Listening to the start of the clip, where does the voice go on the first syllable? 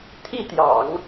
falling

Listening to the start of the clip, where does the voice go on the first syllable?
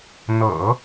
low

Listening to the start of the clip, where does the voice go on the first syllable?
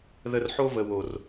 low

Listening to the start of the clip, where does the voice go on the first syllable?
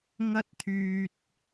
high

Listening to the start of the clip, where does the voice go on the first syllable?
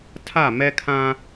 falling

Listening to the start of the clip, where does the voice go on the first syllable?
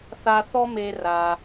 high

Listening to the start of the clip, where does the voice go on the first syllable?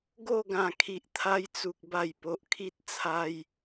falling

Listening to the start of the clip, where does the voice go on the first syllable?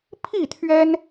falling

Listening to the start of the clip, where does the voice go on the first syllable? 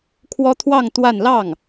high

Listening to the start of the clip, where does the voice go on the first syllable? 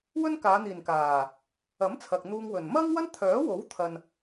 high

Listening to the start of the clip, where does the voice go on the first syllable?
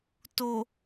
low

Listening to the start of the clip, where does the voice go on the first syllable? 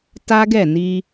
high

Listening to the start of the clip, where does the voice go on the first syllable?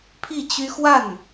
falling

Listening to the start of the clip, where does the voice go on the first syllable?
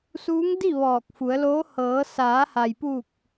rising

